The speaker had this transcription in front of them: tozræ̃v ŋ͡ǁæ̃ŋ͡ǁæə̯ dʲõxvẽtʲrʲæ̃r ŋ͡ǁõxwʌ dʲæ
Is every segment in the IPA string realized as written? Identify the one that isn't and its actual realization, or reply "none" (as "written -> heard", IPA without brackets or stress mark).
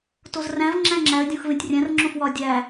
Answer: ʌ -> ɒ